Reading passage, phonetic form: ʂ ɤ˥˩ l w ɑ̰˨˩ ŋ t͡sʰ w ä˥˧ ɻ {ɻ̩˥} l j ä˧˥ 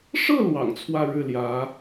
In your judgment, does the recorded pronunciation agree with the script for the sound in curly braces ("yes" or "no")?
no